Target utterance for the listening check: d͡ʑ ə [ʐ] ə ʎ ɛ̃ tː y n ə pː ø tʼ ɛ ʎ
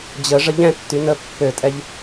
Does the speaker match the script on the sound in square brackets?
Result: yes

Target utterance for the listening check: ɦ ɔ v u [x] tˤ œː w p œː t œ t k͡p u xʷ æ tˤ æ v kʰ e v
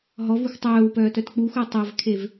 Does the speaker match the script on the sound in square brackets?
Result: yes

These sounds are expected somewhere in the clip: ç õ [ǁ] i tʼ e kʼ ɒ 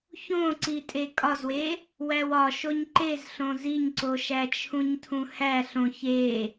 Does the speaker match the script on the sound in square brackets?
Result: no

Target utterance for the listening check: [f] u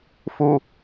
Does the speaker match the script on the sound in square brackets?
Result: yes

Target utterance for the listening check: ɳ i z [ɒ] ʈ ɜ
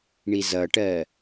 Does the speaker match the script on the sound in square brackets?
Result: no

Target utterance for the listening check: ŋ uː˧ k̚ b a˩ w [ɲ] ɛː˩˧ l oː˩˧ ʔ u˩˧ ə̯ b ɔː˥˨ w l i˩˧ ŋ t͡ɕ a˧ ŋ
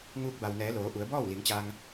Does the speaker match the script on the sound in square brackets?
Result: no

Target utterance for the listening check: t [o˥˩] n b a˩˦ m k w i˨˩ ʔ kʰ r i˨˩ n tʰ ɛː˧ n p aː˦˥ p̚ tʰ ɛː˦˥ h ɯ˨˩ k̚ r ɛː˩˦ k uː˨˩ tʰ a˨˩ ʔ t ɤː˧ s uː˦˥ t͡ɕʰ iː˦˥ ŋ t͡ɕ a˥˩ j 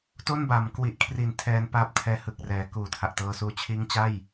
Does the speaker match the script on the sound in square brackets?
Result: yes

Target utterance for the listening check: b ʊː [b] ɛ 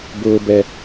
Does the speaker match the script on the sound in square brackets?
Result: yes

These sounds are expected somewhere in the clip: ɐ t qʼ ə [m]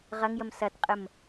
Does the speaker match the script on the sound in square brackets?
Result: yes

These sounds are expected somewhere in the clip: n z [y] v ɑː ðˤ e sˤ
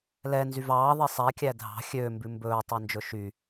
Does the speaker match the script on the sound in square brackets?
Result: yes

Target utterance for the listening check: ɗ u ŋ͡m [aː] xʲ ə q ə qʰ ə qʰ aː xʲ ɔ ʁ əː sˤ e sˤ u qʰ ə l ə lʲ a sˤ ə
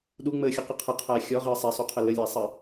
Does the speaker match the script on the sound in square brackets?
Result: no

